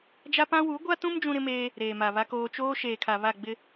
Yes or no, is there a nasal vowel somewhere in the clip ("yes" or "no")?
yes